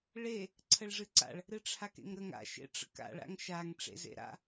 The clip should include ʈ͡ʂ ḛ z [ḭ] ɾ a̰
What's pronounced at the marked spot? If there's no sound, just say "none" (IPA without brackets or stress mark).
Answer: ḛ